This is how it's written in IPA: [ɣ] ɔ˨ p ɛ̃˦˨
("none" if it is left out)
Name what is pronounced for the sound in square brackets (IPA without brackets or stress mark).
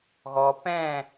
ɣ